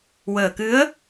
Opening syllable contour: low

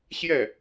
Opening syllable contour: falling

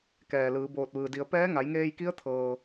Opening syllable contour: low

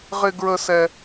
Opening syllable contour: high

